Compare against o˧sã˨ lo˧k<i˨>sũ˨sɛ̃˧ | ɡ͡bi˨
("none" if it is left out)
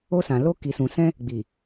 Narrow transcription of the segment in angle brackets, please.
i˨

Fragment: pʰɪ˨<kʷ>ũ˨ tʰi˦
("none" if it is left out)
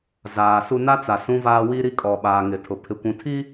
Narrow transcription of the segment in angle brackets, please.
kʷ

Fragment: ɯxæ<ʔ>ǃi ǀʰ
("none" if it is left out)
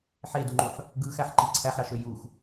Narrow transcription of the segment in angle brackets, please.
ħ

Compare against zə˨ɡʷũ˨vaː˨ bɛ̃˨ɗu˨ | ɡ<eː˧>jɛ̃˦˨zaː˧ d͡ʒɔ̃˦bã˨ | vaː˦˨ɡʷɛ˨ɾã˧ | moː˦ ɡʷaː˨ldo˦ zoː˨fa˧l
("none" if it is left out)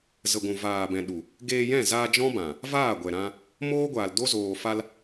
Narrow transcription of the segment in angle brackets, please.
eː˧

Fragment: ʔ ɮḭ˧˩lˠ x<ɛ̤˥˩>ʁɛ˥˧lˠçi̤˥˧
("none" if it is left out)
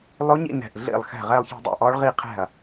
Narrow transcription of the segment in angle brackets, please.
ɛ̤˥˩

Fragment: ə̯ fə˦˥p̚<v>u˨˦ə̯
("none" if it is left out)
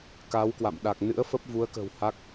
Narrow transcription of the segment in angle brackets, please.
v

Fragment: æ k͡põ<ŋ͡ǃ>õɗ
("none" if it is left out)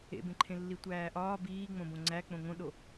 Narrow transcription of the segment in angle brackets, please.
ŋ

